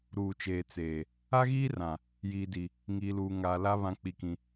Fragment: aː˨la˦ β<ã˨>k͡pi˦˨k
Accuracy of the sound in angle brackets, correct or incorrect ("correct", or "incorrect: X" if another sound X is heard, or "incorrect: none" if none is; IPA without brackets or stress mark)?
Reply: incorrect: ã˦